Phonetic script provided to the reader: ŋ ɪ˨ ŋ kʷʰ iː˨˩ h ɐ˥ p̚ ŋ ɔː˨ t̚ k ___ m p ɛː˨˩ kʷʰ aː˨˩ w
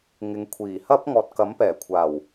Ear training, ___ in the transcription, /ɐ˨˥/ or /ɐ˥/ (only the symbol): ɐ˨˥